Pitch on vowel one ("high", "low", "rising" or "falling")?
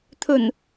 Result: low